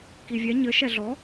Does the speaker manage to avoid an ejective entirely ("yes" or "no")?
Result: yes